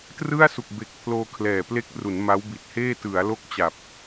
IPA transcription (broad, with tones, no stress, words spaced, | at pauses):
trɯ˥˩a̯ su˨˩k̚be˨˩k̚ pʰloː˧kʰlɛː˨˩ple˦˥k̚ ru˩˦nma˦˥wbi˨˩t̚heː˥˩ tɯ˩˦a̯ lo˦˥k̚t͡ɕa˨˩p̚